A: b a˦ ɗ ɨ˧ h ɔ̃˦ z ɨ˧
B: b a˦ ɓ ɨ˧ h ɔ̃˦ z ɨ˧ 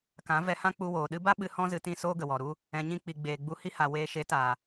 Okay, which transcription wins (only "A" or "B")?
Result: B